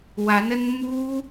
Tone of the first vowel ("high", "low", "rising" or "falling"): rising